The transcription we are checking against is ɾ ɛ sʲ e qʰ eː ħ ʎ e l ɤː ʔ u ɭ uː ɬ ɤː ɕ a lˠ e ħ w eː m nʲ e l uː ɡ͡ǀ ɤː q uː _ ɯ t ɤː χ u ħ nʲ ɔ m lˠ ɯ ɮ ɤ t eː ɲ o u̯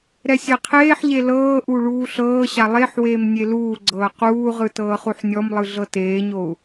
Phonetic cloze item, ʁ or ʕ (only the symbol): ʁ